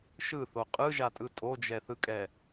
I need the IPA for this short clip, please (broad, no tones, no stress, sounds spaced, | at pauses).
ʃ ɯ θ o qʼ ɯ ʒ a tʼ ɯ tʼ o d͡ʒ ɛ θ ɯ kʼ ɛ